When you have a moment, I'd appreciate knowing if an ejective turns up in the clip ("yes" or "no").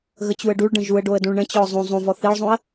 no